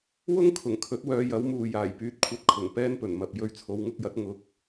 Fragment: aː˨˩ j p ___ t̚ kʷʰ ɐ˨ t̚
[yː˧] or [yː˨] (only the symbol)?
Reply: yː˨